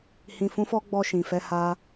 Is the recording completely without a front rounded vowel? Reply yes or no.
yes